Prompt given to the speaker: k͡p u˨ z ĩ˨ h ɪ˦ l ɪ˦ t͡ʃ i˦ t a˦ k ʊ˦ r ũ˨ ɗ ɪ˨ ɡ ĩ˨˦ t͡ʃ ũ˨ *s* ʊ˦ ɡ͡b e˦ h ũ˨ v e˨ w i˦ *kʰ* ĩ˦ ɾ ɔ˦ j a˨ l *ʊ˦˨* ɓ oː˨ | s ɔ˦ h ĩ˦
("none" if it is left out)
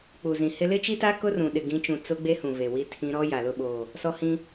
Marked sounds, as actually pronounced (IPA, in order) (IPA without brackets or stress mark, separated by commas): t͡s, tʰ, ʊ˦˨